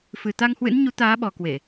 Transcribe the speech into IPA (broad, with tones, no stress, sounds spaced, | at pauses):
f ɨ˨˩ t̪ a˧ ŋ h w ɨ̰˧˥ n ɲ u˨˦ t̪ aː˨˦ ɓ ɔ˨˩ k w e˧˩˨